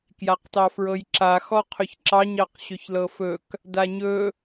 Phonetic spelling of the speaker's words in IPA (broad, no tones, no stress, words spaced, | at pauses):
kjaqtɑfɹɤjǁa xɔqʰɵçǁɑɲ ɑqɕɵçlɤfɵk | daɲɵ